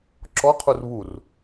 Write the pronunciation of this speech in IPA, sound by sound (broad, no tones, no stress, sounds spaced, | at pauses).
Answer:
ǁ ɔ qʰ u r β u r